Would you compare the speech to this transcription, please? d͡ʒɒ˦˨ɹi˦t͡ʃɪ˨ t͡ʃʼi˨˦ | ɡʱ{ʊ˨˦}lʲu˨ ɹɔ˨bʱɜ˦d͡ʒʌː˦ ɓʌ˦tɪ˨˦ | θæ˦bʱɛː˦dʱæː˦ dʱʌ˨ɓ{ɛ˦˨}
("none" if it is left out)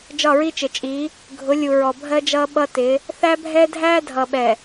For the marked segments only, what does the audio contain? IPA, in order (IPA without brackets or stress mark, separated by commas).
ʊ˨˦, ɛ˨